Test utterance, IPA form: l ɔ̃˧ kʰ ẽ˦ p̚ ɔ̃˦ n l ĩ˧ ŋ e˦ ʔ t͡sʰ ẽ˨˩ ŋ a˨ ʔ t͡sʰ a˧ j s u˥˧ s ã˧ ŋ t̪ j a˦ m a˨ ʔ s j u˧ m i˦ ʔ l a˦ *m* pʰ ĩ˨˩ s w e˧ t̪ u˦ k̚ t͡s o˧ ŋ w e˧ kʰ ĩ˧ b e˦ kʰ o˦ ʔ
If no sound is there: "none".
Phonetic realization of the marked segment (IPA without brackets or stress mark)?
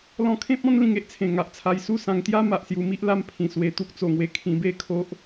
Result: m